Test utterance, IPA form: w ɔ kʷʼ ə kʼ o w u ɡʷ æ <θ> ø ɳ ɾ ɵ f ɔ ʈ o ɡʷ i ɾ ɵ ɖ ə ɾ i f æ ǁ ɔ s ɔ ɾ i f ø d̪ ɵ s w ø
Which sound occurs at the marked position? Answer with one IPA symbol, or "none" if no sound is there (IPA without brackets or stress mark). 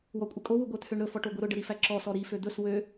t̪ʰ